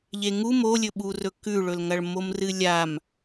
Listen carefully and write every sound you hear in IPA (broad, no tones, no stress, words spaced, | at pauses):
ʎeŋu molʲɵɓurɵ kʉɭɵlŋɐɭ momrɨlʲam